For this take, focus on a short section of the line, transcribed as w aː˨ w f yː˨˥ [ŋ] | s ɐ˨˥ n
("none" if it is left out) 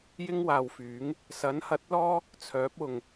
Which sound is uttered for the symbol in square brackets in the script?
ŋ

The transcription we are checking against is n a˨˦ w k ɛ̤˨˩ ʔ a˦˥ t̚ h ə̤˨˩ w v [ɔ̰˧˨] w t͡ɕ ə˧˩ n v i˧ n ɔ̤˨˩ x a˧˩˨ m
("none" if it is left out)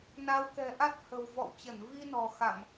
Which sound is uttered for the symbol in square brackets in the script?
ɔ̰˧˨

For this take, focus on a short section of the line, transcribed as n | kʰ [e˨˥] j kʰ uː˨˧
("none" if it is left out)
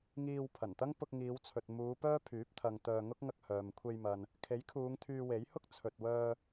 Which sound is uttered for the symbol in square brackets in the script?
e˨˥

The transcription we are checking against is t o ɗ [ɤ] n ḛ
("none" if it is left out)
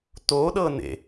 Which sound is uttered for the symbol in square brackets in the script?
ɤ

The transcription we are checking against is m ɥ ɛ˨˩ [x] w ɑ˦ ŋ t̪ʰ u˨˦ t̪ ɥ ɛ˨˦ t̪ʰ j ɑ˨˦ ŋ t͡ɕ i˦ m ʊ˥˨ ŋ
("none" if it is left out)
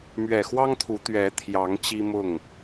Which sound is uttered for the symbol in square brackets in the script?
x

